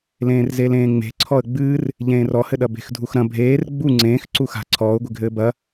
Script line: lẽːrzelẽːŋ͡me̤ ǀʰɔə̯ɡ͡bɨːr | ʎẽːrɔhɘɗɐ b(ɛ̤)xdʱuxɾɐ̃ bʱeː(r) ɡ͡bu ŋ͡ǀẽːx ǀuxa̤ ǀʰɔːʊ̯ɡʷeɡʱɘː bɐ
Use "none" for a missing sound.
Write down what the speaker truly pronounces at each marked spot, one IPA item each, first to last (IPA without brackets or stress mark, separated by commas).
e̤, r